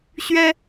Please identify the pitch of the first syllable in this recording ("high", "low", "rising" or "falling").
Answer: high